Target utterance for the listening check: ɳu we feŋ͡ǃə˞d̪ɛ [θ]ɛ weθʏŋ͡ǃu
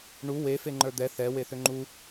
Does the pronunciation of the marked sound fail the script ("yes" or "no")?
no